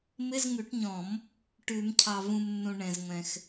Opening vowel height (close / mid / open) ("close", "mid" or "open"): close